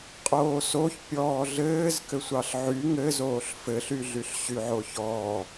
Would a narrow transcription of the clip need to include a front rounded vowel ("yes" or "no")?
yes